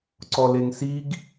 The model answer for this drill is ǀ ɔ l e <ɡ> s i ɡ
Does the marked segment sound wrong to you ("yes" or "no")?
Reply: yes